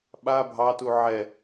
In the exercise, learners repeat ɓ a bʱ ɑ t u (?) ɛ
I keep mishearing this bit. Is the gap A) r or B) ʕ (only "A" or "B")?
B